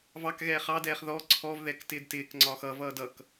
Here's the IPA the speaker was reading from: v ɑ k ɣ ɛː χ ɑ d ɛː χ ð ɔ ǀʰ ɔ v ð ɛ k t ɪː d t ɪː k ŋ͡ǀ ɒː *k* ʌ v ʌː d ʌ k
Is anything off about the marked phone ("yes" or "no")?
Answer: yes